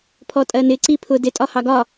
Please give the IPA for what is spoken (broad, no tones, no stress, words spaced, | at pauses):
pʰɔtʼɜnɪ ǀipʰʊ dɪ tʼɒhɑɡɒ